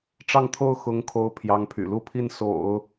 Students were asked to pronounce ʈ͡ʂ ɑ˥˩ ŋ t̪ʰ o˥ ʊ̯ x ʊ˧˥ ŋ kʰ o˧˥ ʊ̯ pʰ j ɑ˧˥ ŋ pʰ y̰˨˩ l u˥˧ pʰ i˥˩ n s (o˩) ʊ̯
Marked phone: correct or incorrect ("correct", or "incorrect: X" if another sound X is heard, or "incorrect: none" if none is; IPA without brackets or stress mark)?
incorrect: o̰˨˩˦